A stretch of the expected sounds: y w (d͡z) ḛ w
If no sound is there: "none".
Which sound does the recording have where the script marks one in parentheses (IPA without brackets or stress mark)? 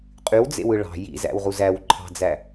d͡z